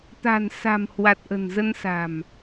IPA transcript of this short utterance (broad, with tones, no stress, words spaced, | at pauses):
t̪a̤˨˩nsa̤˨˩mhwa˨˩t̚ ʔə̤˨˩nzə˧nsa̤˨˩m